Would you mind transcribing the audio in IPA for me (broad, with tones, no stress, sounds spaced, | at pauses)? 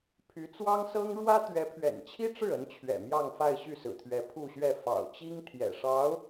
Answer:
pʰ y˧˥ t͡s w ɑ˥ ŋ s ɤ˥ ŋ ɻ w ä˥ t̪ ɥ ɛ˧˥ pʰ ɥ ɛ̰˨˩ n t͡ɕʰ i˥ ʈ͡ʂ ɻ̩˥˩ ə˧˥ n t͡ɕʰ ɥ ɛ̰˨˩ m j ɑ˥˧ ŋ f a˥˧ ɪ̯ ɕ y˥˩ s ɹ̩˨˩ t̪ʰ ɥ ɛ˧˥ pʰ u˥˧ ɕ ɥ ɛ˥˩ f ɑ̰˨˩ ʊ̯ t͡ɕ i˥ ŋ t̪ʰ j ɛ̰˨˩ ʂ ɑ˧˥ ʊ̯